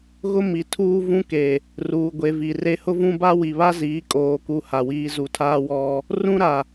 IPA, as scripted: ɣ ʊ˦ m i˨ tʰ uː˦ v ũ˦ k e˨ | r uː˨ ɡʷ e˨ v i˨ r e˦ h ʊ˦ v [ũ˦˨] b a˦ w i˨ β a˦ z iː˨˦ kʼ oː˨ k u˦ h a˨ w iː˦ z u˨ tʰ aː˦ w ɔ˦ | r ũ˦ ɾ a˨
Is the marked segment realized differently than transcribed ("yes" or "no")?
yes